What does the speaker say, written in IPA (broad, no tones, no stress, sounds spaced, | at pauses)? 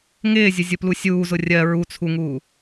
ŋ ɪː zʲ ʊ zʲ ʊ p l u sʲ uː z ʊ rʲ ɜ ɹ u t͡sʰ u ŋ uː